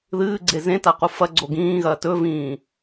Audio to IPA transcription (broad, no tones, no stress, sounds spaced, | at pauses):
ð ɨː ɡ͡ǀ e z ẽ t a q u f ɐ ɡ͡ǀ o ɡ ĩː ɣ ɐː t ɵ v ĩː